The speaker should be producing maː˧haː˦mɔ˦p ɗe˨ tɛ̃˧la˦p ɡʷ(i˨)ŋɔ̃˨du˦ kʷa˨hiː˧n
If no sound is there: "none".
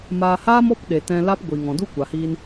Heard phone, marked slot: i˨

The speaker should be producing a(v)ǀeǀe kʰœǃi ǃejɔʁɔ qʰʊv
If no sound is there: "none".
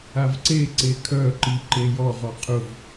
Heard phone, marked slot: v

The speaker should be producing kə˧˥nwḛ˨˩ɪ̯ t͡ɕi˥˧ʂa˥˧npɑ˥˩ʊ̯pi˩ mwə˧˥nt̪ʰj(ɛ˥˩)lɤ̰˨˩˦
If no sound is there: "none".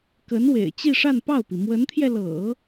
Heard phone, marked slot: ɛ˧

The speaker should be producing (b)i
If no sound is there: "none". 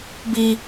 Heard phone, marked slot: b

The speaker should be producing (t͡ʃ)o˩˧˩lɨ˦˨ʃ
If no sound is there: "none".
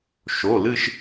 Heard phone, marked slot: ʃ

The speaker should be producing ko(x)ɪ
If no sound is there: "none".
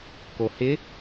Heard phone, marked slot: h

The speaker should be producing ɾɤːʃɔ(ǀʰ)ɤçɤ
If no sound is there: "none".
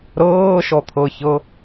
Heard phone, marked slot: t̪ʰ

